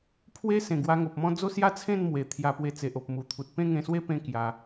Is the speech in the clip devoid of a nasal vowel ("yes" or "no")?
no